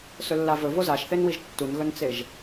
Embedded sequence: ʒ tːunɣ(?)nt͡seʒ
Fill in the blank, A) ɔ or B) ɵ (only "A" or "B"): B